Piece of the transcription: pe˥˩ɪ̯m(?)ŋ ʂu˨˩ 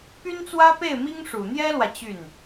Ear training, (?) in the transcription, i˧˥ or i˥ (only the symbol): i˥